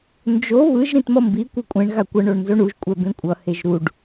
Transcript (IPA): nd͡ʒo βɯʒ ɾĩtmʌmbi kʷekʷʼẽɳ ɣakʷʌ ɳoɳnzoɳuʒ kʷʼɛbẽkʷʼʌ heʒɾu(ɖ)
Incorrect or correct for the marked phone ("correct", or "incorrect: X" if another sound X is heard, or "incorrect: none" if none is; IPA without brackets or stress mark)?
correct